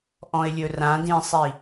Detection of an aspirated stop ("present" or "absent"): absent